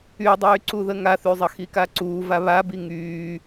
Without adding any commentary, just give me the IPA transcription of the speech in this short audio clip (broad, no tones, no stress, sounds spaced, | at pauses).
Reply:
y dˤ yː ǀ u ð ə ŋ a θ y zˤ ə x i k a ǀ uː v a β a b i ŋ yː